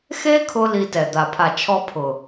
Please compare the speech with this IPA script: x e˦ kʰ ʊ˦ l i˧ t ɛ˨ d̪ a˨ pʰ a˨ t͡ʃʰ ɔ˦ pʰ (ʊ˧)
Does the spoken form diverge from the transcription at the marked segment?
yes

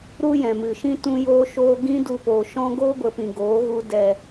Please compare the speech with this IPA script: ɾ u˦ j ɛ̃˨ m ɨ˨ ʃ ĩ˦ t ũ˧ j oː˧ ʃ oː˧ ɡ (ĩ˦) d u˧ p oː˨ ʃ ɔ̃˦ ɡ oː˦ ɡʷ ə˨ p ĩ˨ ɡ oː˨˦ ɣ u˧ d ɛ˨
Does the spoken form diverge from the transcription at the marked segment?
no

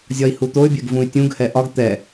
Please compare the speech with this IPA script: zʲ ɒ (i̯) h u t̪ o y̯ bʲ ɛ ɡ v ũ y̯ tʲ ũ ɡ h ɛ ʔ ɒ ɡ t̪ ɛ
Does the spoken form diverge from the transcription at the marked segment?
no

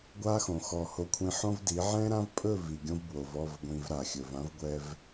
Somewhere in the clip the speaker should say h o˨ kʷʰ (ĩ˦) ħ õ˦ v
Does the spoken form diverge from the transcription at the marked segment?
yes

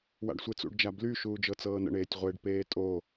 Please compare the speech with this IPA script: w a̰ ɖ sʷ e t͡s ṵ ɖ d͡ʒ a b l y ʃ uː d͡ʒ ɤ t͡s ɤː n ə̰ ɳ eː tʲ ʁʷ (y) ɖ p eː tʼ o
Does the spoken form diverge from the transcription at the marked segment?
yes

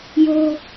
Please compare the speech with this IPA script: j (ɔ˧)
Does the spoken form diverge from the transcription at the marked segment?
yes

